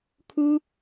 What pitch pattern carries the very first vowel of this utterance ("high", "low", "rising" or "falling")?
high